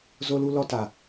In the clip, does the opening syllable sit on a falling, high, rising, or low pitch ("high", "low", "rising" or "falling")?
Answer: high